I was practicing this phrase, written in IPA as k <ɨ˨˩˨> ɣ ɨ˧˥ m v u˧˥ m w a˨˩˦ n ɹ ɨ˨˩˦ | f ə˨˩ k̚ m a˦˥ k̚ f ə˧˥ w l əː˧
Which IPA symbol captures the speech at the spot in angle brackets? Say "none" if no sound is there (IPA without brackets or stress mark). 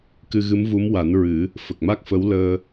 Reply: ɨ˧